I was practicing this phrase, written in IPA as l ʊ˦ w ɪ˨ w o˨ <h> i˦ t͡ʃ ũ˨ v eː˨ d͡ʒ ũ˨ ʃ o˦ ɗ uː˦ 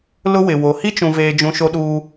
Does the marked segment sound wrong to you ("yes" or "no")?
no